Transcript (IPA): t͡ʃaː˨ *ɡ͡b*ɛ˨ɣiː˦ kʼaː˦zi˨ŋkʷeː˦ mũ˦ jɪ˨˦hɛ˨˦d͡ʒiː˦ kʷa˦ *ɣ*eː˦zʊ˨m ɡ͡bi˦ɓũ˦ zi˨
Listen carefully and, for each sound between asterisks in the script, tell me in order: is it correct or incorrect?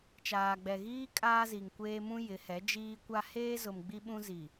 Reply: correct, incorrect: h

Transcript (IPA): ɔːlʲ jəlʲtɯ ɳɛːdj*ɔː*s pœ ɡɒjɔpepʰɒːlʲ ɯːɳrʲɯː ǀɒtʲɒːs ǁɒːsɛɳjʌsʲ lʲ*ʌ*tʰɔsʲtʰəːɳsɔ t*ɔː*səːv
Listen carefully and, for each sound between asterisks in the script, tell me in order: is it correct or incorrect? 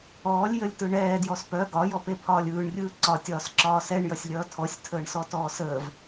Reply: incorrect: ɔ, incorrect: ʌː, correct

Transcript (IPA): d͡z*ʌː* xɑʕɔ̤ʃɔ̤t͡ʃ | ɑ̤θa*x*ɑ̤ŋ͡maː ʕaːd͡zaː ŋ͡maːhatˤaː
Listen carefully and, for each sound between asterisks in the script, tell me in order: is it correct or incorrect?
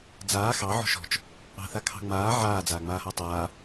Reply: incorrect: aː, incorrect: kʰ

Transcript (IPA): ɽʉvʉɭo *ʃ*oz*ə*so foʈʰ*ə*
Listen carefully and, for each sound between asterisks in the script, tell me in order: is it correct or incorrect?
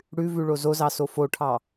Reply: incorrect: z, incorrect: ɑ, incorrect: ɑ

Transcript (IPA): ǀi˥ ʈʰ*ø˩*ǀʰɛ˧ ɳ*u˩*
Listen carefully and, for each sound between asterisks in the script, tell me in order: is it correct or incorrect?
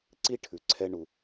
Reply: incorrect: ʉ˩, correct

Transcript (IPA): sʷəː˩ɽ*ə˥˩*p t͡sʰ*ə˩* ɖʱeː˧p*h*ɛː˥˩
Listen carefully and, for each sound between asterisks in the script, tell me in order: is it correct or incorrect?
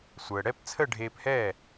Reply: incorrect: ɛ˥˩, incorrect: ə˥˩, correct

